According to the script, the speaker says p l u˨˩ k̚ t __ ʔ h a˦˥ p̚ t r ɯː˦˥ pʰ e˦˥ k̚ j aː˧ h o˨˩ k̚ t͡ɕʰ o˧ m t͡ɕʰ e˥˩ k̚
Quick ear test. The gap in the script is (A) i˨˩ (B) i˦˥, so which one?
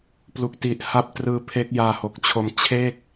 A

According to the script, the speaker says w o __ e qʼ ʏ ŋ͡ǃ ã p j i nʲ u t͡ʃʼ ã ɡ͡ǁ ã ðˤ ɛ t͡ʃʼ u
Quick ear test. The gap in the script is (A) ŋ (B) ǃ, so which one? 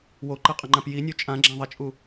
B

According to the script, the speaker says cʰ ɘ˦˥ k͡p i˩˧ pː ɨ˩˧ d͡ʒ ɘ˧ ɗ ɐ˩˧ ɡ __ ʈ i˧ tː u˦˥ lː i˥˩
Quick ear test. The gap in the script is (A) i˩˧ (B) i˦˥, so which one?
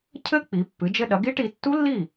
B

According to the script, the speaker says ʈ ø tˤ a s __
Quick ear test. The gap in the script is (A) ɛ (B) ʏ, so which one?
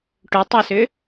B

